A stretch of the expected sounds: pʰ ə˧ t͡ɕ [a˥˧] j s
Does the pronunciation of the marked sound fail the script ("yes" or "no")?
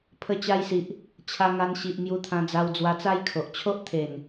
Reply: yes